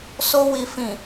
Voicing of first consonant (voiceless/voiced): voiceless